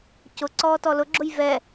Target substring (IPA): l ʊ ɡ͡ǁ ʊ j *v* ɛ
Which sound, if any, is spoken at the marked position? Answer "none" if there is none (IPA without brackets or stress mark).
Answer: v